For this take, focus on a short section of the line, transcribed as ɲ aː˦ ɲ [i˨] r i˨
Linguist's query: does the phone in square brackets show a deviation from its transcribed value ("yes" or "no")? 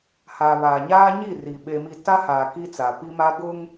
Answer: yes